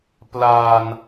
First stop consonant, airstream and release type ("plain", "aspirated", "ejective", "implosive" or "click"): plain